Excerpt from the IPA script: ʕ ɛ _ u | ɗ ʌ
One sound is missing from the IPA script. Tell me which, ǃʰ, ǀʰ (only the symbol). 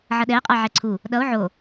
ǀʰ